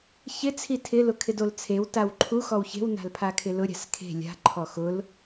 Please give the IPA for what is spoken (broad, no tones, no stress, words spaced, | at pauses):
çɪt͡sʰi tʰɪlʊ kʰɪdolt͡sʰew tawǃʰu xɔwçe̤wna̤l pʰakʰɪlʊ ɾʲa̤skʰe̤ lʲa̤ ǃʰɔxʊl